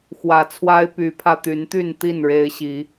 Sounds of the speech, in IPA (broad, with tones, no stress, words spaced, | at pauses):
xwä˨˩t͡sʰwa˦ɪ̯py˨˦pʰä˧ t̪y˨˦nt̪y˥˨nt̪i˥˨n ɻe˦ɪ̯ɕi˨˦